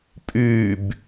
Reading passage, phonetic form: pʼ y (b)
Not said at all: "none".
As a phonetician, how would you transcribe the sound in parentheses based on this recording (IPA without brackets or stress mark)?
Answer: b